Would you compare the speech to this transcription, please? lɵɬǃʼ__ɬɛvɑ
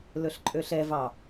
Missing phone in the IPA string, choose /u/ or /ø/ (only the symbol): ø